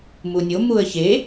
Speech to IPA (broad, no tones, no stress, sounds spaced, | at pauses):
m u nʲ o m u ə̯ ç e